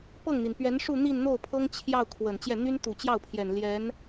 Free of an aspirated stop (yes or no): no